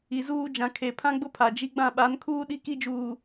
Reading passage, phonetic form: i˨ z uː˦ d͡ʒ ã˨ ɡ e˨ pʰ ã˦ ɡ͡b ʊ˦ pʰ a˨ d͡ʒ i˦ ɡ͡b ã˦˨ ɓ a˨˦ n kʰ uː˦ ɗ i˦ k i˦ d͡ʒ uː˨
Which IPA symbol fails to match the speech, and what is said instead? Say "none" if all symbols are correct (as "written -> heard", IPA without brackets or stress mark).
ɡ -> kʰ